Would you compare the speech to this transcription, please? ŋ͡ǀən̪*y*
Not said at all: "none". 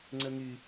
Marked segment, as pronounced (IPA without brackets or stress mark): y